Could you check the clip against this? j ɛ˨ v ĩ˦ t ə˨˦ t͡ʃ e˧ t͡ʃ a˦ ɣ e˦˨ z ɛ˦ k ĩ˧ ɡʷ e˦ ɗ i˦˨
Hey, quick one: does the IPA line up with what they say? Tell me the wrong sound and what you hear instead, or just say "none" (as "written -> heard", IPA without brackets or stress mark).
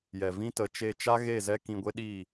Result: none